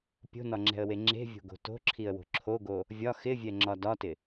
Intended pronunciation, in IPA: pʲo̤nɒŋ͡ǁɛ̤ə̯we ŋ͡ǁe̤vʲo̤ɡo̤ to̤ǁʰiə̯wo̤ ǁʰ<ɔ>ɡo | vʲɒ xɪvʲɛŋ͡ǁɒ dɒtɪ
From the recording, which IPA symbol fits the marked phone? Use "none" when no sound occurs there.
o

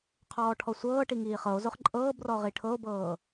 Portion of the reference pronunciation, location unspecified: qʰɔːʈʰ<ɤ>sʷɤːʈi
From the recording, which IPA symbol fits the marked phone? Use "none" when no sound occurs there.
ɔ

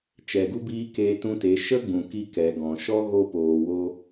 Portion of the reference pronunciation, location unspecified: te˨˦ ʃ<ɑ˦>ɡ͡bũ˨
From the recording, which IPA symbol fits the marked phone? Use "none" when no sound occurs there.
ə˦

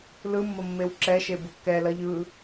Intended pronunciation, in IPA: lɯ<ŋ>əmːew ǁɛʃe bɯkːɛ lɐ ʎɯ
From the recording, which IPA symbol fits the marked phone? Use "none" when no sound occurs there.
mː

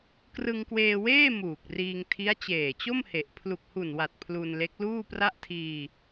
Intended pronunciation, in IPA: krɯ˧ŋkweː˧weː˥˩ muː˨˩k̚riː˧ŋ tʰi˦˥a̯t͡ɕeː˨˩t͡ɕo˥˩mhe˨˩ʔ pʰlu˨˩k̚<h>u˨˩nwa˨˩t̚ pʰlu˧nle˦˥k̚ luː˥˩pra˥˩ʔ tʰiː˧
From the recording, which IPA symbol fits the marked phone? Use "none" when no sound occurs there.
h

